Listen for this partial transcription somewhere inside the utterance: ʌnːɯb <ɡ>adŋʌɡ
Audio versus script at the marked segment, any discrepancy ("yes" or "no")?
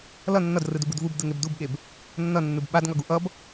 yes